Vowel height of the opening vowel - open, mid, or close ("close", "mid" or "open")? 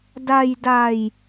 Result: open